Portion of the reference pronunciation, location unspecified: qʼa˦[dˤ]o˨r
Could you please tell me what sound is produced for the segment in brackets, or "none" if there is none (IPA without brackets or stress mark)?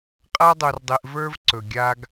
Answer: dˤ